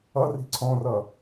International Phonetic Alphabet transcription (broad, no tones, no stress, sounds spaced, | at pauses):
ʌ r i̤ ǀʰ ɔ̃ r ʌ